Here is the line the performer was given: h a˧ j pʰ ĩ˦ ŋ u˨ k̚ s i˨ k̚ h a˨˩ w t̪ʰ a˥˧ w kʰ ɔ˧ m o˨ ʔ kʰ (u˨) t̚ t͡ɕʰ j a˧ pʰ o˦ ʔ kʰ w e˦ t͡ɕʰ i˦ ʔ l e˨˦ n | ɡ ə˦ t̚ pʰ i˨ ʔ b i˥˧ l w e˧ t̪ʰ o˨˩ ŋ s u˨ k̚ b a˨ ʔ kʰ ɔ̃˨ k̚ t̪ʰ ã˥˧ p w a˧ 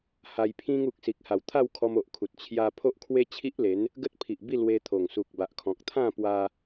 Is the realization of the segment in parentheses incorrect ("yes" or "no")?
no